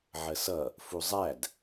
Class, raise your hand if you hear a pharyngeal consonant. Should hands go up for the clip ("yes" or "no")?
yes